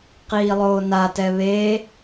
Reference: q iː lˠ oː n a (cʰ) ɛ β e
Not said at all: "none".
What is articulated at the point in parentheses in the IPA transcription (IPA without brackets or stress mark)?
t